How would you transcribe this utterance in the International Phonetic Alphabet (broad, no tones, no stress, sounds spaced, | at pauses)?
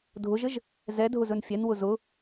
dʱ ʊ ʒ ɘ ʒ | z ɛ dʱ ʊ z ɵ n fʲ ɛ n w ʊ z ʊ